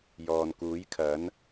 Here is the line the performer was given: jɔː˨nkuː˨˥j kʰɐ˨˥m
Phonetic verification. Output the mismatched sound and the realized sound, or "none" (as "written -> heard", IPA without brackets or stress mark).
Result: m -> n